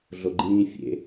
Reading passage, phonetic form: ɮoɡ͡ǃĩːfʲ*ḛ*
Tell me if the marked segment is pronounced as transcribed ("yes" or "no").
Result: yes